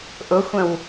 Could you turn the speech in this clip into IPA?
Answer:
ʔ ʊ xʷ ə̃ w

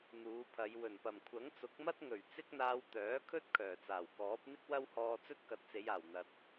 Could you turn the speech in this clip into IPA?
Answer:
n̪ uː˨˧ pʰ ɐ˨˧ j w ɵ˨˩ n p ɐ˨˩ m kʷʰ ɐ˨˥ ŋ t͡s ʊ˨˥ k̚ m ɐ˥ t̚ ŋ ɵ˨˩ ɥ t͡s ɪ˥ k̚ n̪ aː˧ w t̪ œː˨˥ kʰ ɵ˥ t̚ kʰ œː˨˩ t͡s aː˨˩ w k ɔː˨˥ p̚ n̪ ɪ˥ k̚ w ɐ˥ w h ɔː˧ t͡s ɵ˥ t̚ k ɐ˨˥ t̚ t͡s e˨˧ j aː˨˩ w n̪ ɐ˨ t̚

